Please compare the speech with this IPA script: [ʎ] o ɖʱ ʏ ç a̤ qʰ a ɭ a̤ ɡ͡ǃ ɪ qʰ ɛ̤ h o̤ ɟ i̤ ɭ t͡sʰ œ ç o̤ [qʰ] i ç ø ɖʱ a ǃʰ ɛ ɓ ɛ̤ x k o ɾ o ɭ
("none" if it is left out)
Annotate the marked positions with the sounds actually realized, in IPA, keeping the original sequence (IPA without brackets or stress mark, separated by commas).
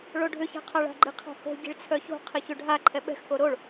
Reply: ɭ, qʰ